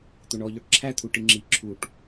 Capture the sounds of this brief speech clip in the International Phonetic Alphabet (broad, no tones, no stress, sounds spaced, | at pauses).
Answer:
t̪ o ɳ ɔ ʎ ɔ ʈ ǁʰ æ t̪ʰ u ʈ i ŋ͡ǁ i ǁʰ u ʈ